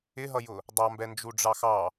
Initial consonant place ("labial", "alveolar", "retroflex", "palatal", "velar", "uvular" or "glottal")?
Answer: glottal